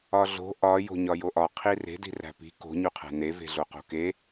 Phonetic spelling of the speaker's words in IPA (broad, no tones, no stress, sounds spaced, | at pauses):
ɒ ɮ o̤ ʔ ɒ j o̤ ɲ ɒ j o ʔ ɒ qʰ i r e̤ d i̤ r æ̤ p i̤ k o̤ ɲ u qʰ æ̤ n e v e̤ ɮ o q o̤ k e